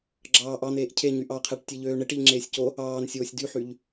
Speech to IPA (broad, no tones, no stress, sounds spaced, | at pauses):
ɡ͡ǁ ɑː ʔ ɑ n̪ eː ʔ cʰ e ɲ y ʔ ɑ qʰ æ ʈ tʲ e ʎ øː ɳ e ʈ i ʎ ŋ͡ǁ eː sʲ c o | ɑː n sʲ oː sʲ d y ħ y ʎ